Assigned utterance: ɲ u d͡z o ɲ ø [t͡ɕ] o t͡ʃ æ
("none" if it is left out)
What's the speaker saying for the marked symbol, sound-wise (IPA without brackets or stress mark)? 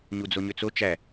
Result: t͡s